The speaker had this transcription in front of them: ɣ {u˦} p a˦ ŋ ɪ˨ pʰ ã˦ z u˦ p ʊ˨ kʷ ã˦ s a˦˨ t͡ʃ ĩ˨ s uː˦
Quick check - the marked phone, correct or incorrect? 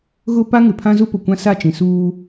incorrect